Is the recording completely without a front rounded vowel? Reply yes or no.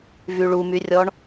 no